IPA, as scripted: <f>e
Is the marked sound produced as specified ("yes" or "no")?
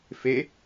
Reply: yes